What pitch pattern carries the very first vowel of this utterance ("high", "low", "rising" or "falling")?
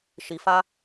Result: low